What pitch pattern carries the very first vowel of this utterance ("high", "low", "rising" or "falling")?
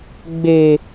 low